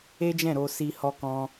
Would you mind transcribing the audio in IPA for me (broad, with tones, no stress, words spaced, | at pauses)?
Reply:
e˦d͡ʒɛ̃˦˨ɾo˧ si˧ hɔ˧kɔ̃˧